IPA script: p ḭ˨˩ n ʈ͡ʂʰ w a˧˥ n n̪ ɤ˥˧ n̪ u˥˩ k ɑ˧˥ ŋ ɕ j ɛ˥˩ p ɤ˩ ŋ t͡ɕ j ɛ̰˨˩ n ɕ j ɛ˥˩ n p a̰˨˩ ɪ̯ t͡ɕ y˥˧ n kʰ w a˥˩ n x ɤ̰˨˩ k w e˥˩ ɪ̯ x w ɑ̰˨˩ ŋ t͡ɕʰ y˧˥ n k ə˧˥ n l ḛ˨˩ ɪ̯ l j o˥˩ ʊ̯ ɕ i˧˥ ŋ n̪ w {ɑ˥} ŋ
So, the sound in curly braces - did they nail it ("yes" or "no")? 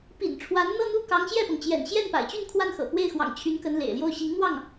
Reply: no